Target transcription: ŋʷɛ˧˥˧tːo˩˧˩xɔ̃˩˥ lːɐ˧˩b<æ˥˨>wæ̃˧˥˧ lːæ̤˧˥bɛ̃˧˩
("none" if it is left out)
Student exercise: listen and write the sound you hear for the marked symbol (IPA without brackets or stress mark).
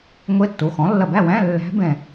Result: æ˥˨